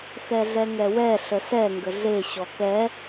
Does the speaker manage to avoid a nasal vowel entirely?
yes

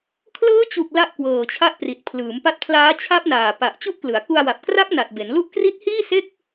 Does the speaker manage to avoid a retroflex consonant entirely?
yes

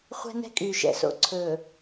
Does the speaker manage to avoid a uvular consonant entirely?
no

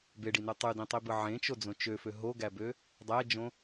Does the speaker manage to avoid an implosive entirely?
yes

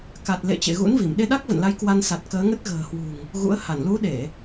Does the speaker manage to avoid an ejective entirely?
yes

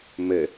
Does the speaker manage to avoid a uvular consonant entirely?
yes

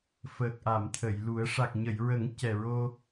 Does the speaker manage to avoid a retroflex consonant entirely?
no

